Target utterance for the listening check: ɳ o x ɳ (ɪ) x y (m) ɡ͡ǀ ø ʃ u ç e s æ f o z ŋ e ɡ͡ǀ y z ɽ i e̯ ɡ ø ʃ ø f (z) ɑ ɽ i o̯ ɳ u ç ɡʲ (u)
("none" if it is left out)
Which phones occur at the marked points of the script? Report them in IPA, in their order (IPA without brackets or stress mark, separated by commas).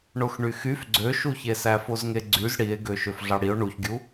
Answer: y, f, ɮ, u